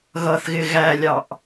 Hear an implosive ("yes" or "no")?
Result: no